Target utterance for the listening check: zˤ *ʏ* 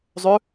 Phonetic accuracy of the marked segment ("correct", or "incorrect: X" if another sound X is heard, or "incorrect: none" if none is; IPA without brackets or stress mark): correct